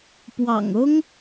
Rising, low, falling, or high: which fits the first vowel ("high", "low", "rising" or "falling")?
low